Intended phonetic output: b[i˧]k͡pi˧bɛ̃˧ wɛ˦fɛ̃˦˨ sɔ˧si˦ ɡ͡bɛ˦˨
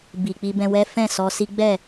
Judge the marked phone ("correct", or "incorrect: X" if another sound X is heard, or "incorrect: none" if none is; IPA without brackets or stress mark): incorrect: i˨